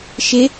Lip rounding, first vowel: unrounded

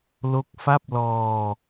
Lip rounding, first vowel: rounded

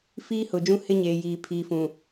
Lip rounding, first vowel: unrounded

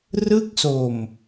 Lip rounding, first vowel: unrounded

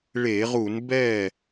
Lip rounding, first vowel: unrounded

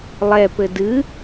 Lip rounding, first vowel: unrounded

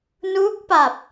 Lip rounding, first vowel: rounded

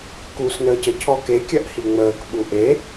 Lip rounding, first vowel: rounded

